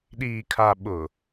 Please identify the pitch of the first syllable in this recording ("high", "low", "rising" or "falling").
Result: low